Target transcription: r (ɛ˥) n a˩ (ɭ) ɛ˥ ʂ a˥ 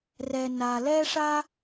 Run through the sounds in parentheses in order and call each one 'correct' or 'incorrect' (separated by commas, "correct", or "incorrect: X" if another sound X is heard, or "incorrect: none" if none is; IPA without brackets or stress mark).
incorrect: ɛ˩, incorrect: l